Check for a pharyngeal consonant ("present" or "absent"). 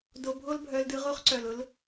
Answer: absent